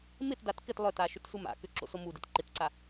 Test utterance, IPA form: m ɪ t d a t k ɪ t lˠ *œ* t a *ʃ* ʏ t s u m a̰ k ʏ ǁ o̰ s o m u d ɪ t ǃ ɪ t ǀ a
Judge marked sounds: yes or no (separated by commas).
yes, yes